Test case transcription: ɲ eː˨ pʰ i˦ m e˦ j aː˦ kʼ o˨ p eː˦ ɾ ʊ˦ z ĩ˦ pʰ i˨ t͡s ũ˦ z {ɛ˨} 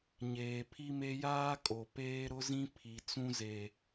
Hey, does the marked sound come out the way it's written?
no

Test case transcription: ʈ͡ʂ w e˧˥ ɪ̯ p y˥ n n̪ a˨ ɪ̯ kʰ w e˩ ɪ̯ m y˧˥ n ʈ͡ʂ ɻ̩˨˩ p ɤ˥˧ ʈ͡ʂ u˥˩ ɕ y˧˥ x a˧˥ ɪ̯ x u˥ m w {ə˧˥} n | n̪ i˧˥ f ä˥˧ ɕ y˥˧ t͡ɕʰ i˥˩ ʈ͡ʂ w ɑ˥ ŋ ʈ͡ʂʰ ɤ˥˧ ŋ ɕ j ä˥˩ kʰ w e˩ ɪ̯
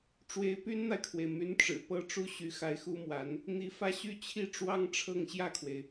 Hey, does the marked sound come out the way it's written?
no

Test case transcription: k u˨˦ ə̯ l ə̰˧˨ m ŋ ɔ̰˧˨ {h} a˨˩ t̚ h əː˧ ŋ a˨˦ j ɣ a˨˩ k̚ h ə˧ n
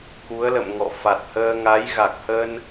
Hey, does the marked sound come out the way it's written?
no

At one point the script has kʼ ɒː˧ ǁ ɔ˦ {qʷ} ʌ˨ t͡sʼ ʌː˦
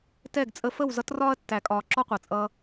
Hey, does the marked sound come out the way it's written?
yes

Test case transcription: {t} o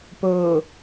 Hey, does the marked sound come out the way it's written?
no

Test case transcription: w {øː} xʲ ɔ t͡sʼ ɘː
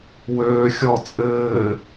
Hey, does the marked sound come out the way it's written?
yes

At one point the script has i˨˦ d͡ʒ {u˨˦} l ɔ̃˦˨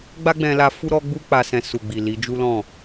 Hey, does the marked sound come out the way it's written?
no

